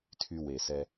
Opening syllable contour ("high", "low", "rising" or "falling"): high